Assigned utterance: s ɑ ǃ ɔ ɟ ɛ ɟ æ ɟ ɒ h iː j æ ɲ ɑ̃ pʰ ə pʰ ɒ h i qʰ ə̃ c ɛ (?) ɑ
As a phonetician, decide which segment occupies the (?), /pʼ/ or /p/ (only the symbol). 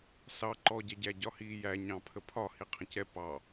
p